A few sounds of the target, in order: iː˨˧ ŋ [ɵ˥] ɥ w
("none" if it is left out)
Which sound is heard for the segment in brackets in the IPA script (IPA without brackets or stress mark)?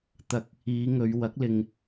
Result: ɵ˨˧